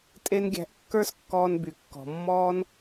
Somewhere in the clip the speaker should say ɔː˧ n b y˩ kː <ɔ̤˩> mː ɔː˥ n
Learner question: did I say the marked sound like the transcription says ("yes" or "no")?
yes